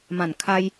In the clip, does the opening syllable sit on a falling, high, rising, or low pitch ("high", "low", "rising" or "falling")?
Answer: falling